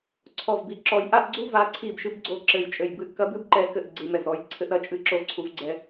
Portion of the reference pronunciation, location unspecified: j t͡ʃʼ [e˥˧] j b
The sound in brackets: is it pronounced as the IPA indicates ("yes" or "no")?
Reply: no